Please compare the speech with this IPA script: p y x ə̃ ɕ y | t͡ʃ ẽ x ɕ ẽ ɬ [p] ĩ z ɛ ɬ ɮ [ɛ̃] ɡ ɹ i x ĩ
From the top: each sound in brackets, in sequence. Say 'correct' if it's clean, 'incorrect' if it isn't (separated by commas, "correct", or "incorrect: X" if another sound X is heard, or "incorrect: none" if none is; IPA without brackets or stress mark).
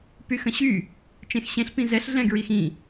correct, correct